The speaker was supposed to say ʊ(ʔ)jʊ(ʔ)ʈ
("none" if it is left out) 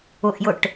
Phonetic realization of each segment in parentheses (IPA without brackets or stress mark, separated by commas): ʔ, none